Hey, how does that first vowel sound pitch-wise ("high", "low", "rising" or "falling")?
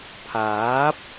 rising